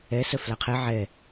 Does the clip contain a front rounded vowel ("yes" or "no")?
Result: yes